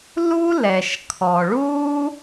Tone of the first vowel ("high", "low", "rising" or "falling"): high